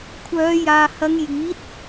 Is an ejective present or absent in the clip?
absent